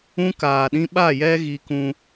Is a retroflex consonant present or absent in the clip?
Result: absent